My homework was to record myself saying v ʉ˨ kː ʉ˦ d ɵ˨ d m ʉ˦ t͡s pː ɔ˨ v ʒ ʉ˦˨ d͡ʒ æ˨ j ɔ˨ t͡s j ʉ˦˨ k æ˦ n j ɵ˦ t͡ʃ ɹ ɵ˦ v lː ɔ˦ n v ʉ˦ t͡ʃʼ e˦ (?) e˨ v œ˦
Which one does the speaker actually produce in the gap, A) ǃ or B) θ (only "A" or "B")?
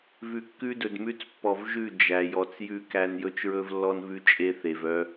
B